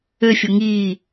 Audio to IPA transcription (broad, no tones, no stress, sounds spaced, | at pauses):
ø fʲ o ŋ iː